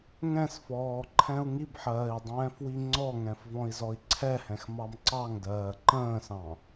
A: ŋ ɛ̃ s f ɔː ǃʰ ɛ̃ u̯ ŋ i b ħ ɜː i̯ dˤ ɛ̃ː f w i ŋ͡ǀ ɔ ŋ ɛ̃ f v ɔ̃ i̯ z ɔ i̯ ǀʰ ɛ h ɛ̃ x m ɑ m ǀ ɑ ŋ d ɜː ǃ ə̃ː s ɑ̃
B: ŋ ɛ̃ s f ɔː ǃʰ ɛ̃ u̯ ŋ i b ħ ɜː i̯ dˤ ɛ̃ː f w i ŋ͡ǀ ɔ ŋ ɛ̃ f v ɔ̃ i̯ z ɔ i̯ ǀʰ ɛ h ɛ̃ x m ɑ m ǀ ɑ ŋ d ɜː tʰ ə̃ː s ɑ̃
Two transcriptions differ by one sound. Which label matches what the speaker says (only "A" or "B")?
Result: A